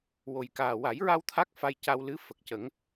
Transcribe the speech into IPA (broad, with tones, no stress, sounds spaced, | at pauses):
w o˨˩ j k aː˨˩ w a˨˩˦ j ɹ a˧ w t̪ʰ a˦˥ k̚ f a˧ j c a˧ w l ɨ˧˥ f ə˨˩ k̚ c ə˨˩˦ ŋ